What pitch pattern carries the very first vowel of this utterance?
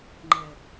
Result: low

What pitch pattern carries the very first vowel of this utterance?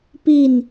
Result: falling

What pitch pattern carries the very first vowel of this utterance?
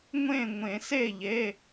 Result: falling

